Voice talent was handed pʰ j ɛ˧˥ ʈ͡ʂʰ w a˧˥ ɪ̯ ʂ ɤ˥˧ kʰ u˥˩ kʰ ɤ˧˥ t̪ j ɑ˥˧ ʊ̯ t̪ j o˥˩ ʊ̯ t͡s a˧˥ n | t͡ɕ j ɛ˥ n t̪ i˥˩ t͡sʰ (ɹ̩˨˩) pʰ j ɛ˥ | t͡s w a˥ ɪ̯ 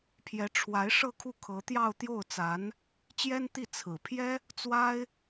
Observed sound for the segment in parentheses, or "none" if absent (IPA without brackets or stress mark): ɹ̩˨˩